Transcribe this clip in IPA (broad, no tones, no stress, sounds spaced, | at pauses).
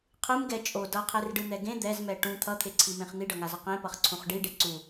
qʰ ɯ m ɡ ɛ t͡ʃʼ o d ʌ qʰ e r ɖ ɯ n̪ ɛ ɡ ẽ d̪ ɛ z m ɛ ʈ ũ t̪ʰ ʌ t̪ʰ e ǀʰ i m ẽ χ n̪ i ɖ ʌ ŋ a z ʌ q ẽ p ʌ χ ǀʰ ũ χ ɖ i ɖ e ǀ u